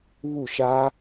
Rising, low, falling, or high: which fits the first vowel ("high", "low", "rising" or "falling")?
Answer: falling